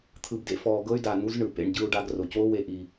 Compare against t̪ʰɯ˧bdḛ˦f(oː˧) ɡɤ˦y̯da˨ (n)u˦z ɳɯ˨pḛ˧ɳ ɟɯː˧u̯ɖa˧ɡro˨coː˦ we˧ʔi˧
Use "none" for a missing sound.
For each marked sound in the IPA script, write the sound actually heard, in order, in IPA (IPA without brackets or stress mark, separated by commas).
ɔː˧, n